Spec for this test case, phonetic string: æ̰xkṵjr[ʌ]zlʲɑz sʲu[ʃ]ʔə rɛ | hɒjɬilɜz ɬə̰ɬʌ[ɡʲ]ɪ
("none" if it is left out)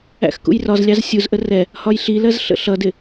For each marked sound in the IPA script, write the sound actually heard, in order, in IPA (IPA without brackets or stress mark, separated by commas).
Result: ɒ, z, d